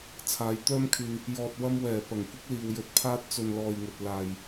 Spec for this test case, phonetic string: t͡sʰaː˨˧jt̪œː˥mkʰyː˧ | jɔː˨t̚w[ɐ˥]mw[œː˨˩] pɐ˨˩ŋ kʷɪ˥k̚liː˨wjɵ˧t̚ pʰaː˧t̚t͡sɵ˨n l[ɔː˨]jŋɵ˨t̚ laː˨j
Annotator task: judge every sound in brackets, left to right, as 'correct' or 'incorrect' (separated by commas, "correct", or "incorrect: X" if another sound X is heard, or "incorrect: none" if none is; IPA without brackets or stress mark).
incorrect: ɐ˧, incorrect: ɛː˨˩, correct